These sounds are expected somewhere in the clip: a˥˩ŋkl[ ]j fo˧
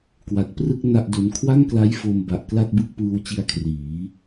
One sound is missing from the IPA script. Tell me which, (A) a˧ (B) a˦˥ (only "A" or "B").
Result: B